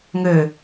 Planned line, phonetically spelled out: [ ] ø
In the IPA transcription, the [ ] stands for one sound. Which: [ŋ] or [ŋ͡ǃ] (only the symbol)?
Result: ŋ